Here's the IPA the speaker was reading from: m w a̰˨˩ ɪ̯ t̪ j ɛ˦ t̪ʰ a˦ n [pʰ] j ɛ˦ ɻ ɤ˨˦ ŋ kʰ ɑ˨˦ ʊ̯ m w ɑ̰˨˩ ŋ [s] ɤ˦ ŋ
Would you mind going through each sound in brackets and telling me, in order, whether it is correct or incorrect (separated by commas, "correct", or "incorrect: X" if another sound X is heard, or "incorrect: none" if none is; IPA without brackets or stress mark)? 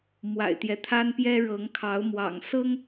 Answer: incorrect: p, correct